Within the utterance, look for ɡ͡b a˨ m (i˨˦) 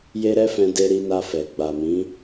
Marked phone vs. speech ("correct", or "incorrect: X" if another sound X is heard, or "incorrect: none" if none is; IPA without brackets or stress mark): incorrect: ĩ˨˦